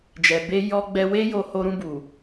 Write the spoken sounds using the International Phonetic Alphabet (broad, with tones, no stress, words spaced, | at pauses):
d͡ʒɛ˨be˧ jɔ˧ɡ͡bɛ˧we˦jo˧ ho˧ɾũ˧bu˨